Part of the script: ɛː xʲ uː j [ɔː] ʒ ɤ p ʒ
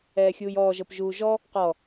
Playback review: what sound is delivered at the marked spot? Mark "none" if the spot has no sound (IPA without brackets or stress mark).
ɔː